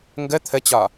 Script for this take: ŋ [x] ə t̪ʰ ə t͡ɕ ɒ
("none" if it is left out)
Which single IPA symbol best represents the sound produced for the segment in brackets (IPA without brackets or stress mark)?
ɡ